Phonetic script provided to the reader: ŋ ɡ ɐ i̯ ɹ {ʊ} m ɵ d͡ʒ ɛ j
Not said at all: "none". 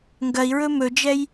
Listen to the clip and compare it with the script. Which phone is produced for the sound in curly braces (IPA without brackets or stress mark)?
ɵ